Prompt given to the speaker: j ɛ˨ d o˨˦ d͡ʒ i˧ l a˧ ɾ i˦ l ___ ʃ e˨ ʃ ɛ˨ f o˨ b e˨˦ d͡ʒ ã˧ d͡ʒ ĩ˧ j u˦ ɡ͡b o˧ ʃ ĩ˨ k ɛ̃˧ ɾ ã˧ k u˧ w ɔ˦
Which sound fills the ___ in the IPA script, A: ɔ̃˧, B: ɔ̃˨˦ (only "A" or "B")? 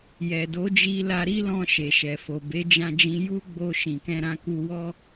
A